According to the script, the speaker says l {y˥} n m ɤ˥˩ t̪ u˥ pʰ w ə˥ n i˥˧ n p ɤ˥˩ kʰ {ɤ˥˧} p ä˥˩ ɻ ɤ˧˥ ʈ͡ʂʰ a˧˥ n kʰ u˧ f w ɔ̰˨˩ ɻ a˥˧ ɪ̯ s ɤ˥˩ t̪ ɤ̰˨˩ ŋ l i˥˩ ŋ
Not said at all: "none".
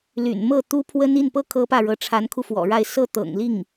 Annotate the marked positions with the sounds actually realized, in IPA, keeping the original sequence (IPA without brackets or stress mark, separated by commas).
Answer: y̰˨˩, ɤ˥